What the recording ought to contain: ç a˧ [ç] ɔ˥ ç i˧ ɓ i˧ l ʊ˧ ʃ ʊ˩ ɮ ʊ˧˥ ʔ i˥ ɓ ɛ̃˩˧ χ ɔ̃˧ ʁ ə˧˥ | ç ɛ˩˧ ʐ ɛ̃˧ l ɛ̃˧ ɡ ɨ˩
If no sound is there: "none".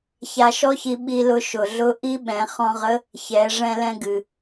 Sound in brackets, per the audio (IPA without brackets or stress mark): ʃ